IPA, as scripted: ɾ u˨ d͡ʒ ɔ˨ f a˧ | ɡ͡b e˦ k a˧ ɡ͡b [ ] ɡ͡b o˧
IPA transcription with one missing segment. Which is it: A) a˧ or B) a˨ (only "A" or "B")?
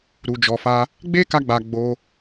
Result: B